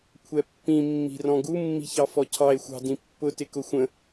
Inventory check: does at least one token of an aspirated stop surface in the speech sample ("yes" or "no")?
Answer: yes